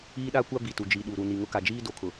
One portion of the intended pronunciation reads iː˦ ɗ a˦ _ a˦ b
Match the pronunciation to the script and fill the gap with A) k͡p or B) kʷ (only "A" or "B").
B